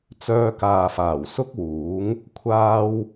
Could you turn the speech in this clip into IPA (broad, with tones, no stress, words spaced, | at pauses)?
t͡sœː˧kaː˨faː˨˩w sʊ˥k̚wuː˨˥ŋ | kʷʰaː˧w